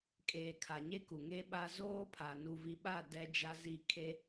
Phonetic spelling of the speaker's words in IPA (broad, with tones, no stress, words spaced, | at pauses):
kʼeː˨kʰa˨ɲe˦ ku˨ŋe˦ɓa˦ zoː˦pʰa˨ nu˨vi˨ɓa˦˨ dɛ˦d͡ʒa˦zi˦˨ kʰe˦